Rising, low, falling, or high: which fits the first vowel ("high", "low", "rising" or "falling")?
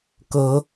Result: rising